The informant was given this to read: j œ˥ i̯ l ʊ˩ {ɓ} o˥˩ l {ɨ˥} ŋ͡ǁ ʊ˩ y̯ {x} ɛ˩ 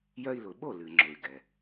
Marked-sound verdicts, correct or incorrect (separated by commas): correct, incorrect, incorrect